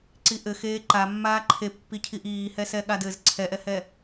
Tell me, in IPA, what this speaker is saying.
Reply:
ǀiʔɘxeː ǃamːaː ǃʰepːicʰiʔ iːhɛsɛ ɠadɘz ǀʰɛʔɛhɛ

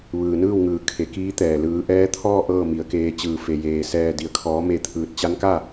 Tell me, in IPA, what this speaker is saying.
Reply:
ʋɯː˩nɯː˥˨wŋɯː˩ kʰe˩˧kiː˧˥t̪ɛː˩ lɯː˩˧ʔɛː˧˥t̪ʰɔː˥˨ ʔɤː˥˨mi˩˧ə̯keː˧t͡ɕɯː˧˩ fe˩jeː˩sɛː˧˩ di˩ə̯kʰɔː˩˧me˧˩ t̪ʰɯː˧˩t̚ t͡ɕa˧˥nka˥˨

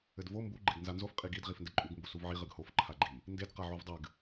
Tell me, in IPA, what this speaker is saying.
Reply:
ɘdvo mbu ɡ͡ǃeɡnzanzof qʼiɡid ʁifndɘǃʼuɡ mbusuvʕi ʁɨɡhof ǃʰaɡ͡ǃi | nded qaʕuvdˤɨɡ

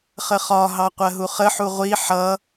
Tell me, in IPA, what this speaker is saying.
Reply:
χəχɒɦɑ qʷɜɦuχəħu ʁʷi ħʌ

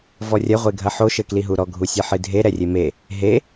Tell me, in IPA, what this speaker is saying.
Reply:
vɔrʲɐ ʁʷeɡʱɐħo ʃɘkliɦuɾɔ ɡʱusʲɘħɨdʱe ɾɛrʲeme | ɦe

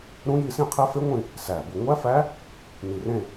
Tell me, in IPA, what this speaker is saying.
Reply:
ɾũ˦˥ji˥˧sĩ˥˧qʰe˦˥ fe˦˥ŋʷĩ˥˧ | sæ˨˩ bu˨˩ŋʷæ˦˥fæ˦˥ | ni˨˩rẽ˥˧

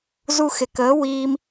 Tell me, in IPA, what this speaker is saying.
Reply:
zu˧xɪ˨kəː˨˦wiː˧m

